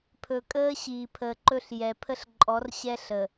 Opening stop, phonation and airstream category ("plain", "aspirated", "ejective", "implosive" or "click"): aspirated